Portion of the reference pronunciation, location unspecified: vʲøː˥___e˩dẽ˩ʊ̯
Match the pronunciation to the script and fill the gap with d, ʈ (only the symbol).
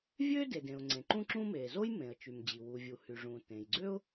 d